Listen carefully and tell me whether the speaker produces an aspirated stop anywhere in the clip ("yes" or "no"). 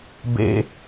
no